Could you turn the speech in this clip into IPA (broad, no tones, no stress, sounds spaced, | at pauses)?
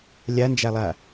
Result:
lʲ a n d͡ʒ a lˠ a